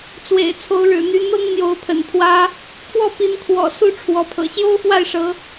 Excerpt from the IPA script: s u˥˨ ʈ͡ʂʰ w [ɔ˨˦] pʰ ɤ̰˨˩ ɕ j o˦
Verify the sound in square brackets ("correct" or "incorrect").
correct